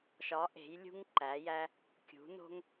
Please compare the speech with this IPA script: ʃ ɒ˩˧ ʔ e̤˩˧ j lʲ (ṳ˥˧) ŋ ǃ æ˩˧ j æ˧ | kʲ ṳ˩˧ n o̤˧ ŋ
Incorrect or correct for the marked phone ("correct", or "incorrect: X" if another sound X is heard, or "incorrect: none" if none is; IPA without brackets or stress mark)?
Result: incorrect: ṳ˧